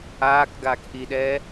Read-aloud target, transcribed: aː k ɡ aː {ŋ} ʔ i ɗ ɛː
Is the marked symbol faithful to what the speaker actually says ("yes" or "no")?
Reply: no